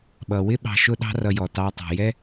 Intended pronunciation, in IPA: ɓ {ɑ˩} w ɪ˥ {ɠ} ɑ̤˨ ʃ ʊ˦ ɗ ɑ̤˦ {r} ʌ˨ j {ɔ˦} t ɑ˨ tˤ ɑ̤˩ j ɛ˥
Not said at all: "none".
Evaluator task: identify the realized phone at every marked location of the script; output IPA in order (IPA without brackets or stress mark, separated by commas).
ʌ˩, ɓ, r, ɔ˩